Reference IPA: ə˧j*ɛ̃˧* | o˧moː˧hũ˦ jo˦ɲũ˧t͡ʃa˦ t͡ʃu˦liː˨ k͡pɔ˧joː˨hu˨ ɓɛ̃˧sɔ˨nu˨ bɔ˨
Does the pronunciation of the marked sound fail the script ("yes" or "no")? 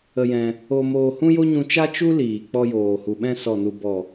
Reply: no